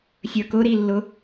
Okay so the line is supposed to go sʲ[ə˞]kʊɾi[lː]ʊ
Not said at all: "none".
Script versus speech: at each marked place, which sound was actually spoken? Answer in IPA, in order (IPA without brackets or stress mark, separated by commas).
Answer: ə˞, lː